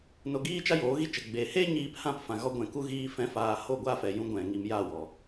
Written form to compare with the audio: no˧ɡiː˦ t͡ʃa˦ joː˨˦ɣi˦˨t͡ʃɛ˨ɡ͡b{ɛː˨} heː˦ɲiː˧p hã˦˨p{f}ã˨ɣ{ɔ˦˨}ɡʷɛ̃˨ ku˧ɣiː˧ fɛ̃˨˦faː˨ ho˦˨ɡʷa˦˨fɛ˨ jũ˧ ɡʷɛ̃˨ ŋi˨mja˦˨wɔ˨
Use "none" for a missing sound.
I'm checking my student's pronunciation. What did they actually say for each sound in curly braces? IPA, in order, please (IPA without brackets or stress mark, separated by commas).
eː˨, f, ɔ˧